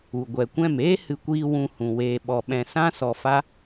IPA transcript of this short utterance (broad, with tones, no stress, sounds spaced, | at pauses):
u˨ ɡʷ ɛ˨ kʷ ɛ̃˦˨ m eː˦ h ɨ˧ kʷ iː˧ w ũ˧ h ũ˨ w eː˨ ɓ ɔ˨ ɓ ɛ̃˧ s ã˦ s ɔ˧ f a˦